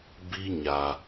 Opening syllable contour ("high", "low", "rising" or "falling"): high